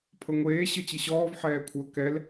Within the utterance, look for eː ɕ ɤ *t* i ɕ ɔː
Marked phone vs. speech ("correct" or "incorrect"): incorrect